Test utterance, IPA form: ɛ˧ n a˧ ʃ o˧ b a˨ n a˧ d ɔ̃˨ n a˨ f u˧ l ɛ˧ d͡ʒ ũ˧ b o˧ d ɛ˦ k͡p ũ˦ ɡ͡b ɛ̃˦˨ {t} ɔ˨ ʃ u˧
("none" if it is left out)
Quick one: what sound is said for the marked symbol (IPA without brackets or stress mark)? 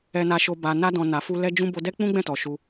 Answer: t